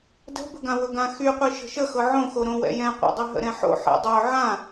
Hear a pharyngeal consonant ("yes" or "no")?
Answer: yes